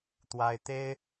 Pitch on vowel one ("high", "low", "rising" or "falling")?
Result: high